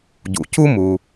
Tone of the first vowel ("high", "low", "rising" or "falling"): low